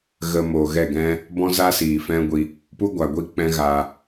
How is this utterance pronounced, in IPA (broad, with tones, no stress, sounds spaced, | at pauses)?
ɣ ə˧ m oː˨ ɣ ɛ˦˨ ɡ ɛ̃˦ | b ɔ̃˦ z a˦ s iː˨ f ɛ̃˦ ɡʷ i˧ | p u˦ ɡʷ a˨ ɡʷ i˦˨ k͡p ɛ̃˦ ɣ a˧